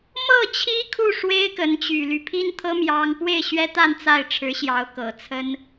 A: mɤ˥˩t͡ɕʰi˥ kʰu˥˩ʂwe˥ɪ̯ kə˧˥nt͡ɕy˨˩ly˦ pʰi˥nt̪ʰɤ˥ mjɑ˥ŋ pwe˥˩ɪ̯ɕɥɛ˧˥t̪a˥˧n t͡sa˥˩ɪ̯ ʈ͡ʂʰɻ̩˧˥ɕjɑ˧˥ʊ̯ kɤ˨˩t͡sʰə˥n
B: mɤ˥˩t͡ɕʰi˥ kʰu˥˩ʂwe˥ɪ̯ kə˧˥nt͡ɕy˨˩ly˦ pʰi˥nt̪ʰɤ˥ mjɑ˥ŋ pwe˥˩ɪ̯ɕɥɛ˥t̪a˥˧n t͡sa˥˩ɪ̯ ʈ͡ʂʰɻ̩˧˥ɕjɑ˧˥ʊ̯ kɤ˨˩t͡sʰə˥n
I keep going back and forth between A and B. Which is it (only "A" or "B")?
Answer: B